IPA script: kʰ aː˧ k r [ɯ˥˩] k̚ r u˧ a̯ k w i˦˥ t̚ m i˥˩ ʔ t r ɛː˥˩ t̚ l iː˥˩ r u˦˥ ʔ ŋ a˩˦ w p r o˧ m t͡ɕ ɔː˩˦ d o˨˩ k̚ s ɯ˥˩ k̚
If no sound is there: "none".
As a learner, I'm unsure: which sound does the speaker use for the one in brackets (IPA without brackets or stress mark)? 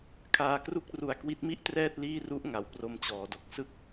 u˥˩